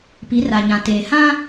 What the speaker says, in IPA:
p i˨˦ r a˨ ɲ ã˨ t eː˨ h ã˦

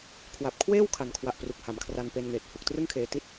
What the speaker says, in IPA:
kʰ w a˨˩ p̚ kʰ w eː˥˩ w kʰ a˨˩ n kʰ w a˨˩ ʔ p r u˨˩ k̚ h a˩˦ m kʰ r a˧ n p e˧ n ŋ eː˨˩ t̚ h u˨˩ k̚ t r ɯ˥˩ ŋ kʰ eː˧ t i˥˩ t̚

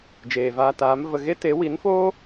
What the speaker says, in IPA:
d͡ʒ eː˨ v aː˧ t aː˨˦ m v ə˧ ɣ e˦ t e˨˦ w i˨˦ n f oː˦

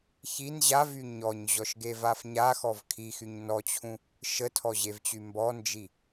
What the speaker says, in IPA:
ç i n ʑ a v y ɲ ɔ ɲ ʑ ɔ ʃ ɡ e v a f ɲ a x ɔ v kʰ i x y ɲ n ɔ t͡ɕʰ ũ | ʃ ə tʰ ɔ ʑ e v t͡ɕ y m b ɔ n d͡ʒ i

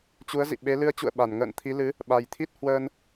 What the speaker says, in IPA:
t͡ɕ u˨˦ ə̯ z ḭ˧˨ ɓ e˨˦ l ɨ˨˦ ə̯ t͡ɕ ṵ˧˨ ə̯ ɓ a˧˩ n ŋ ə̰ː˧˨ n t̪ʰ i˨˦ l ɨ˨˦ | ɓ a˨˩ j t̪ʰ i˦˥ t̚ h w əː˧ n

